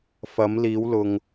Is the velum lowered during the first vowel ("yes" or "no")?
no